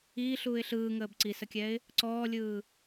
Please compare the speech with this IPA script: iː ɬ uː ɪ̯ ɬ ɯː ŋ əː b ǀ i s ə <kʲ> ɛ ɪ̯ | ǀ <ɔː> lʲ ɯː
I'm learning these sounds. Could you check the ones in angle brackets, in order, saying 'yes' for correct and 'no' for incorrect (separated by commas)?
yes, yes